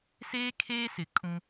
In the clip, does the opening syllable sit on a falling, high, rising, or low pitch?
high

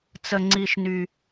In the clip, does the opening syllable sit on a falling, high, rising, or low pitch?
low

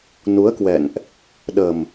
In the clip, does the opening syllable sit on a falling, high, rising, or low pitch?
rising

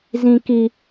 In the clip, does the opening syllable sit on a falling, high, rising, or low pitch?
high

